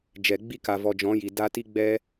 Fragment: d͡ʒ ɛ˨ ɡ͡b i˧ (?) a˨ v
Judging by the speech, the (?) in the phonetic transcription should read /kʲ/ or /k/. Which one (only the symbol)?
k